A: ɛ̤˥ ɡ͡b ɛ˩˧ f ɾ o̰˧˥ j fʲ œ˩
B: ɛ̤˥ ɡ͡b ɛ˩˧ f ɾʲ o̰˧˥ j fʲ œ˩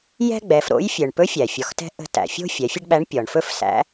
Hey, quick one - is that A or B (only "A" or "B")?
A